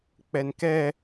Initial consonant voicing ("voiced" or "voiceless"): voiceless